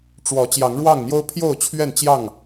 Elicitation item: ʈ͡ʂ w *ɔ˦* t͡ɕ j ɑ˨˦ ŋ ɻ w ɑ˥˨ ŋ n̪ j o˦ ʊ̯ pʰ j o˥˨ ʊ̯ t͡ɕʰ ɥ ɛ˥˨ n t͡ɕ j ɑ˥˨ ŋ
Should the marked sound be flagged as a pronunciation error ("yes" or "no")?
yes